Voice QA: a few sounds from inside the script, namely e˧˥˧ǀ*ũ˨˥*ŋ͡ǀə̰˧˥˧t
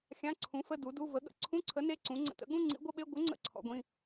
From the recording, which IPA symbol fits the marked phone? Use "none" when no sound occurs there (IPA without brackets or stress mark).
ũ˨˥